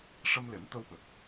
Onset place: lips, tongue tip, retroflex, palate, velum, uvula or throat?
retroflex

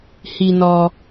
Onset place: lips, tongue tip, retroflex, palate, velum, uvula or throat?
throat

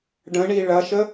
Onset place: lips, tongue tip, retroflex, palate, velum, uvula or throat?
retroflex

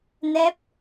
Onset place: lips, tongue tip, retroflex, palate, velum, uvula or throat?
tongue tip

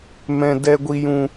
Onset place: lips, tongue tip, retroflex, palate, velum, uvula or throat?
lips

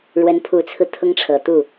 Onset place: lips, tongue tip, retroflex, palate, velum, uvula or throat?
retroflex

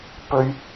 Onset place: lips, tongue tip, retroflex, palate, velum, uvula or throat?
lips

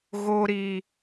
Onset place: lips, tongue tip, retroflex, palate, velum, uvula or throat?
velum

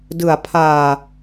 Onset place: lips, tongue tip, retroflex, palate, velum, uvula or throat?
tongue tip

